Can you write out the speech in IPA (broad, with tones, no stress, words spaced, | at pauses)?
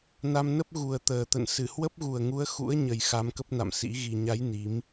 na˧mnə˦˥p̚ ɣu˨˩ə̯t̪əː˨˩ t̪ə̰˧˨n sɨ˧˩hwə˦˥p̚ɣu˨˩ə̯ŋu˨˦ə̯ xṵ˧˥ə̯ɲə˨˩j xa˧mkə˦˥p̚na̰˧˨msḭ˧˥ ɣi˨˩ɲa˨˦j ni˨˦m